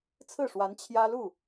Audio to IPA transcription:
t͡sʰ ɹ̩˥˩ ʂ w a˧˥ n t͡ɕʰ j ä˥ l u˥˩

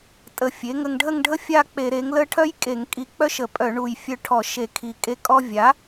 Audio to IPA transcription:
tʼ ə˨˩ fʲ e˩˥ ŋ ə˧ ŋ ɖʱ ə˥˧ ŋ ɖʱ ə˥ fʲ a˥˧ k͡p e˧˩˧ ɾ e˩˥ ŋ l ə˥˧ ʈʰ œ˥ j kʼ e˧˩˧ ŋ kʼ i˧ k͡p œ˥˧ ʃ ə˧˩˧ pʼ œ˧˩˧ ɳ u˨˩ j fʲ œ˧ ʈʰ ɔ˧˩˧ ʃ e˧˩˧ kʰ i˨˩ kʼ e˧ kʼ ɔ˧ vʲ a˩˥

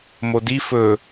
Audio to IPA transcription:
m o d i f ɵ

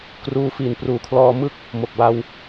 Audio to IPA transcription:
k r uː˧ f i˨˩ n p r uː˨˩ kʰ l ɔː˧ m ɯ˥˩ k̚ | m o˨˩ k̚ b a˧ w

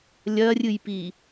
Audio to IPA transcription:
lʲ ɐ rʲ ɨ j p i

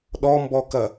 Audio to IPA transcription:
ɗ ɔ m b ɔ k ɐ

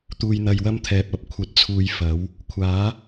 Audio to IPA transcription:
t̪ uː˨ j n̪ ɐ˨ j w ɐ˥ m t̪ʰ ɛː˨ p̚ ɐ˧ p̚ kʷʰ ɐ˨˥ t̚ t͡sʰ uː˨ j f ɐ˨˥ w | kʷʰ aː˨˥

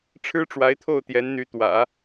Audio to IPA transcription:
ʈ͡ʂʰ ɻ̩˥ ʈ͡ʂ w a˧˥ ɪ̯ t̪ʰ o˥˩ ʊ̯ t̪ j ɛ˧˥ n n̪ y˧˥ t̪ w ä̰˨˩˦

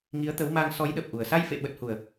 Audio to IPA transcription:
ŋ i˨˦ ə̯ t̪ ə˨˦ w m a˧ ŋ s ɔ˨˦ j ɗ ə˨˩ p̚ ʔ u˨˩ ə̯ s a˧ j f ḛ˧˨ ɓ ə˨˩ t̚ h u˨˩ ə̯

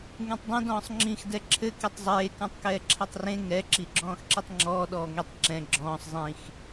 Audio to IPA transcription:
ŋ ẽ tˤ dˤ ɛ̃ d ɔ̃ː sˤ ŋ͡ǁ ĩ x d ɛ ǁʰ ɘ k e tˤ zˤ eː k ɔ̃ tˤ k ɛː ǁʰ ɛ tˤ r ẽ ŋ ɛ ǁ i ɡ͡ǁ ɔ̃ː x ǁ i tˤ ŋ͡ǁ ɔː ɗ ɔː ŋ i tˤ ǁ ɛ̃ ɡ͡ǁ ɔ̃ː sˤ zˤ ĩ x

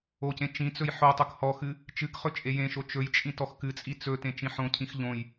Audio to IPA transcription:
o c ẽ t͡ʃ ĩ t͡s ɵ j ħ o tˤ o k h ɔ x ɨ | t͡ʃ ɨ k χ ɵ t͡ʃʼ e j ẽ ʃ o t͡ʃ ɵ j t͡ʃʼ ĩ t ɔ x k ɨ t͡sʼ i t͡s ɵ t ẽ t͡ʃ ĩ ħ õ cʰ ĩ x ʎ õ j

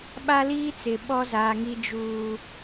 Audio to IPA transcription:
ɓ a˦ l iː˦ t͡s ɪ˨ ɓ ɔ˦ z aː˨ ŋ i˨ d͡ʒ uː˨

